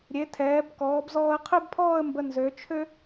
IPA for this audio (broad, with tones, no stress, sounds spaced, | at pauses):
ɾʲ e˩˧ tʰ ɛː˩˧ b k ɔː˩˧ b z ɔː˧ ə̯ qʰ ø˥ b pʰ ɔː˥˧ ə̯ m b ə˧ n z ø˩˧ t͡ʃʰ ø˥